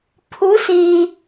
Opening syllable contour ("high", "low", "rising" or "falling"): rising